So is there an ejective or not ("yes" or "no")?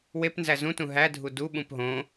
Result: no